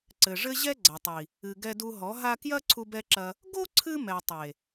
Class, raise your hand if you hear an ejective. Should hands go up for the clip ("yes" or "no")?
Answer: no